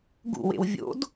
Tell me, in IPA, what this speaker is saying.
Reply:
ɡ ṵ w ḛ w vʲ o̰ d

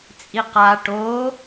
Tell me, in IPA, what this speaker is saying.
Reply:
t͡sʼ i q a ʈ o

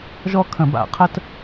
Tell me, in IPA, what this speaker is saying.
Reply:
ʒ ɔ˥ kʰ ə̃˧˩˧ b a̰˧˩˧ qʰ ə˥ t

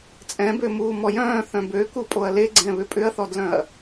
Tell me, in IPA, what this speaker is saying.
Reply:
t͡sʼ ɛ̃ b ø m uː m ɔ j œ̃ː θ œ̃ b ø k u pʼ o ɐ̯ l e ɡ͡ǀ ɛ̃ β ʏ pʼ ʏ ɐ̯ θ ɔ d l œ̃ ɐ̯

